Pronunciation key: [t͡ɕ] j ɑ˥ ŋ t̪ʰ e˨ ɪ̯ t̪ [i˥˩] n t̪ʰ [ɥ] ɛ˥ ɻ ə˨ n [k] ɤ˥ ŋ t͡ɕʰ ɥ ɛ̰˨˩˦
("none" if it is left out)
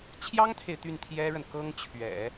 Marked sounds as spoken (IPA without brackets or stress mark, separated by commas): t͡ɕʰ, y˥˩, j, k